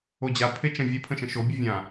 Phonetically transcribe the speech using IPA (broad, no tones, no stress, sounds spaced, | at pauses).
o d͡ʑ a pʰ e t͡ʃ ə̃ vʲ e pʰ ə̃ ʃ ə̃ ʃ o bʲ ə vʲ ã